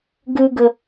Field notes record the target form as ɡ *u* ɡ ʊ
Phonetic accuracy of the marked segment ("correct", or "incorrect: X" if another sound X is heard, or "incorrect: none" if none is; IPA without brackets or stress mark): correct